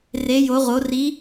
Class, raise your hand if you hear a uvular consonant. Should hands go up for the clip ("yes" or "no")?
yes